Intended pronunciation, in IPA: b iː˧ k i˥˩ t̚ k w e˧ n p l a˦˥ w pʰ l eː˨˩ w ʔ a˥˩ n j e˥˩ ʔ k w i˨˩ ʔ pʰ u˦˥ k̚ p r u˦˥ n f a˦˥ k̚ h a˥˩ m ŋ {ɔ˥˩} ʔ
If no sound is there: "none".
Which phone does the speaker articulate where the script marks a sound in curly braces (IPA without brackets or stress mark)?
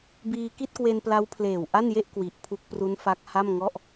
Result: ɔ˥˩